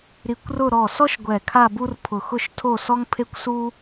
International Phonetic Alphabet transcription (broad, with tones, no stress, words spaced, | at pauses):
ɾi˧kʷrʊ˥˧ ɾɔ˧˩sɔ˥ʃ ɡʷɛ˧˩kʰa˥˧bu˥r pʰʊ˧˩xʊ˥˧ʃtʰo˥˧ sɔ˥ŋpʰe˥kʷsu˥